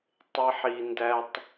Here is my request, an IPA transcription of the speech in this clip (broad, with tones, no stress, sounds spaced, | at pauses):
tˤ e˦ ħ i˧ n d æ˦ tˤ